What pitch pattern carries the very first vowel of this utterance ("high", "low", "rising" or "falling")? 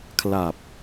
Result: low